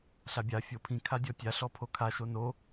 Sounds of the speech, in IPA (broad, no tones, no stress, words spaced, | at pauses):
ɬabʲa fʲopʰĩ kʰadʲɔtʲa ɬɔpʰokʰa ʃono